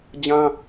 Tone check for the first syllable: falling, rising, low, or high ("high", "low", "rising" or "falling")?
high